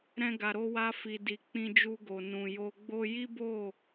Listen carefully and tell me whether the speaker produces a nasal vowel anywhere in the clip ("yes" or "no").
yes